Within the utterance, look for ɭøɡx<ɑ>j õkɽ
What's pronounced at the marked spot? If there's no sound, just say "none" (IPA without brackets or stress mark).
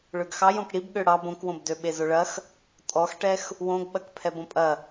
ɑ